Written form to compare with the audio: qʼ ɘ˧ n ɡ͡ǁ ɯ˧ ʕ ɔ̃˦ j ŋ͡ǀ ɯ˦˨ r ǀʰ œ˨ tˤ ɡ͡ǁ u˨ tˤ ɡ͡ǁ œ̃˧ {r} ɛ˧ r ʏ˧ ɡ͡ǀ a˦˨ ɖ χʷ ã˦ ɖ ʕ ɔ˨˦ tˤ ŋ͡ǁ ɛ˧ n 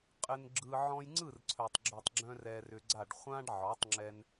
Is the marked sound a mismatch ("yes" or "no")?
no